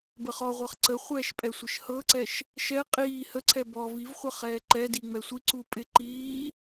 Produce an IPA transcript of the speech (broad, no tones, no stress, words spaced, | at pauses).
bəχɔʁʷɤχ ǀəχʷɛːʃ pʼɛsʷɪʃhɤǀɛʃ | ʃɛ qʼiː həǀʰɛ bɔ vivχʷə χɛːǃɛdi ŋ͡mɛsʷiǀu pʼɪ ǃiː